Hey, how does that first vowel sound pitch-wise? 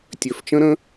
low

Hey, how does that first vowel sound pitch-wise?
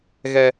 high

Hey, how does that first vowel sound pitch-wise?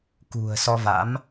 low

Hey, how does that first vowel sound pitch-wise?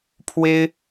high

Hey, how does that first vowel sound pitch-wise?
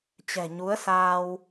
low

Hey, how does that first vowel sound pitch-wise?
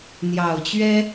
low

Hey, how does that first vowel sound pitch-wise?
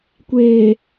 low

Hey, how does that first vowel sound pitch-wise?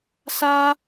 high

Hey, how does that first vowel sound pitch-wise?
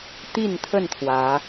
falling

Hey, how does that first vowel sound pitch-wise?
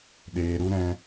low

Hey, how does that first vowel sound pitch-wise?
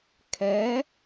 rising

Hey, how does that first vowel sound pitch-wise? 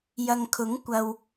low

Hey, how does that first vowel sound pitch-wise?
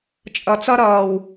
low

